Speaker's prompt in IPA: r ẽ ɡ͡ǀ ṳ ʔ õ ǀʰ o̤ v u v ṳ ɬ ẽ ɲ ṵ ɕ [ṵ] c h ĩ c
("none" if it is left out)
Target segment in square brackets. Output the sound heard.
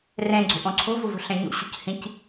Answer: ṳ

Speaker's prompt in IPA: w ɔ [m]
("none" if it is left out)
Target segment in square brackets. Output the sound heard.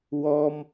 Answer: m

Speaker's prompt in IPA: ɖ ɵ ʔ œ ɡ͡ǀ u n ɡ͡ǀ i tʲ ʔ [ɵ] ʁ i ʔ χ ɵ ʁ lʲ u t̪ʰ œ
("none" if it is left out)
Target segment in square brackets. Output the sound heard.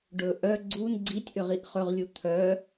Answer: ø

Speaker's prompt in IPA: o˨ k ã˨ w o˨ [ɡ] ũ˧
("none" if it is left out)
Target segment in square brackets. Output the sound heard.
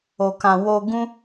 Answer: ɡ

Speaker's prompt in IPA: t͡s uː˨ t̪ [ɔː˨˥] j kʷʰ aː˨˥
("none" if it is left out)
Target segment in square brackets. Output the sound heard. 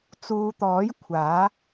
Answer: ɔː˨˥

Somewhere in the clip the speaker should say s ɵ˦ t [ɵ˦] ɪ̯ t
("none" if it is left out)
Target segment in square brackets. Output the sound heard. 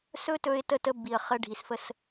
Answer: ɵ˦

